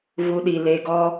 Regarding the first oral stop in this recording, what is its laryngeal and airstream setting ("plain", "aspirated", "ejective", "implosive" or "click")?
implosive